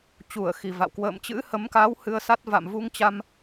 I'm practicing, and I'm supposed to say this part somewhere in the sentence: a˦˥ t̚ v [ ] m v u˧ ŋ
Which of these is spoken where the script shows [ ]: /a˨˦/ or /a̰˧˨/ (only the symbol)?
a̰˧˨